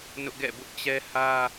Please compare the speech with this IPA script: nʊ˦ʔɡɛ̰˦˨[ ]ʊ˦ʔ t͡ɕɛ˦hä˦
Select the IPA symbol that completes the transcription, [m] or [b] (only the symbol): b